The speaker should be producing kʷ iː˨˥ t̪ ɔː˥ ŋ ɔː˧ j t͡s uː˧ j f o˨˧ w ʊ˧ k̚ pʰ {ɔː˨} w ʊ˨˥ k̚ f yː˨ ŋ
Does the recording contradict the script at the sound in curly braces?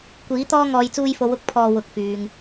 no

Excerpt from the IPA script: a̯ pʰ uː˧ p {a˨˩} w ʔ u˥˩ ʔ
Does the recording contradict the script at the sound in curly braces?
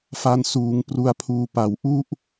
no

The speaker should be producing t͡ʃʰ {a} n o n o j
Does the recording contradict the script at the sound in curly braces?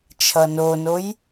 yes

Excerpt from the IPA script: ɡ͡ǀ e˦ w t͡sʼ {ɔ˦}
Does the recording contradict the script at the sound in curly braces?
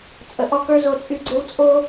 yes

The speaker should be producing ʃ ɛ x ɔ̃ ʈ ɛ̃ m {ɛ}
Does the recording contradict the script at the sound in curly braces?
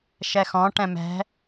yes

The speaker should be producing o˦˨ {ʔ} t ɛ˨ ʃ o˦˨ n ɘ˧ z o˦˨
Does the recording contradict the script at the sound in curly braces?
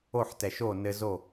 yes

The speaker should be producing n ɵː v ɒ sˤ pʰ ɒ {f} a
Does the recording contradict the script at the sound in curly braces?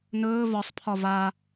yes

